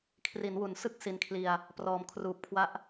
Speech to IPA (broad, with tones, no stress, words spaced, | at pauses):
kʰri˩˦nwu˩˦nsɯ˦˥k̚ si˧nkʰli˧a̯ | prɔː˩˦mkʰruː˨˩p̚kʰwa˦˥ʔ